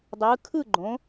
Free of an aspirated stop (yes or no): no